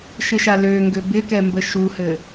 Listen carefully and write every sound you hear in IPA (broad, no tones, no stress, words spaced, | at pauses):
ʃɪʃaløŋɡø bɪkɛ mbəʃuhɘ